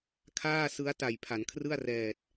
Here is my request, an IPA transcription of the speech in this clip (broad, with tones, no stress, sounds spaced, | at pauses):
kʰ aː˥˩ s ɯ˦˥ a̯ t a˨˩ j pʰ a˩˦ n kʰ r ɯ˥˩ a̯ r ɛː˨˩ t̚